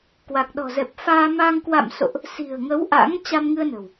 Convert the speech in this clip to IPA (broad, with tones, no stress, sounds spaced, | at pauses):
k w a˨˩ k̚ ɗ ɔ̤˨˩ z ɛ˨˩ p̚ f aː˧ m a˧ ŋ k w a̰˧˨ m s o̰˧˨ ʔ | s i̤˨˩ ə̯ ŋ ə˨˦ w ʔ a̰˧˥ ŋ t͡ɕ a˧ m ŋ ɨ˧ ə̯ n ə̤˨˩ w